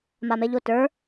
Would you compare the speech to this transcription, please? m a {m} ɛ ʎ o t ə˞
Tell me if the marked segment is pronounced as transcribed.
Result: yes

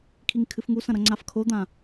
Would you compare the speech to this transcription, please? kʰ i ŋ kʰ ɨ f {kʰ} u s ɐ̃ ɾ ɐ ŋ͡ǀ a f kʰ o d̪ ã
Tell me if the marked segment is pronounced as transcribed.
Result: no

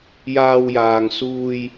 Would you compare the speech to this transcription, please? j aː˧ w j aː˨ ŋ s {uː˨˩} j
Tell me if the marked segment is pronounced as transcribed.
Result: no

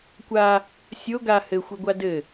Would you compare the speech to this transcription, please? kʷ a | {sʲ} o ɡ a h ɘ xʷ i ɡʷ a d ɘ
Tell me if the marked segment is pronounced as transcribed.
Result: yes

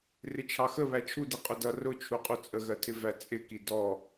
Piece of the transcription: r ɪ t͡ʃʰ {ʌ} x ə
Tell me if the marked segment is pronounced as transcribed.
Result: no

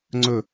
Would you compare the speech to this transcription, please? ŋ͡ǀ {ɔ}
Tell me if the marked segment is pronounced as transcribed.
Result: no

